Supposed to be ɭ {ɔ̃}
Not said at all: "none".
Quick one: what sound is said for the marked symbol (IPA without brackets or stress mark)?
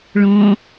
ɔ̃